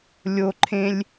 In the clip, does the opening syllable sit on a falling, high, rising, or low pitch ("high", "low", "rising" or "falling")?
high